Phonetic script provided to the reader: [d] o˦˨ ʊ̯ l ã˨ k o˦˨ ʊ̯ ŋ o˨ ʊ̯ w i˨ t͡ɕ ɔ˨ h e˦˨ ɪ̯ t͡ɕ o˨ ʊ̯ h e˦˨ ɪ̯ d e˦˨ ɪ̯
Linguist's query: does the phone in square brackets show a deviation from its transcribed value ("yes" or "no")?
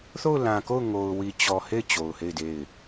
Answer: yes